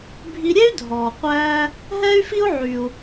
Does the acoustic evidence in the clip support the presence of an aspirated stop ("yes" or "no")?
no